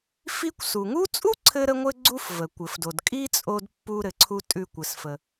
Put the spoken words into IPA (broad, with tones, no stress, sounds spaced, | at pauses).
f i˥ kʷ s u˩ ŋ u˥ t͡sʼ u˥ ǀʰ ɘ˧ ɾ ə˧ ŋʷ ɘ˧ ɡ͡ǀ u˥ f v ə˩ kʷ ɘ˩ f d o˩ d kʼ i˥ t͡sʼ o˧ d pː u˧ ɾ ɘ˩ ǀʰ u˧ tʼ ʉ˧ kʷ ɘ˩ s f ə˩